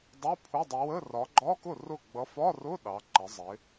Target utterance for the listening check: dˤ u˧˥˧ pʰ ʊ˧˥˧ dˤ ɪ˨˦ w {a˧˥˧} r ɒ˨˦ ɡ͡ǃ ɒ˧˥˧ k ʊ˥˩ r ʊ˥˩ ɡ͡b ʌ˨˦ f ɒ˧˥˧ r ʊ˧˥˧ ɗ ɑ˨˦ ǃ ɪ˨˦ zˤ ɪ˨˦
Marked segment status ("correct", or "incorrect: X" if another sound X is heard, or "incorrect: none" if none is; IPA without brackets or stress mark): incorrect: ə˧˥˧